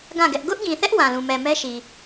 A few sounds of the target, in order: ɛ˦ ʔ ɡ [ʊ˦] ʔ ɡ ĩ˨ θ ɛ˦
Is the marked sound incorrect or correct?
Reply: correct